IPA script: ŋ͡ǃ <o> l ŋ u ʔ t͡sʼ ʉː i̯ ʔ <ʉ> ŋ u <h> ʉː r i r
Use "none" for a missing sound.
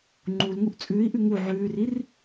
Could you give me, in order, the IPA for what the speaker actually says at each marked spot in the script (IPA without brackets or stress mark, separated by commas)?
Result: u, ʉ, ʕ